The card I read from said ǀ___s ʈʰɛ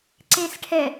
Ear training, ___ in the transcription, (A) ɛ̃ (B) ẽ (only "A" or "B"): B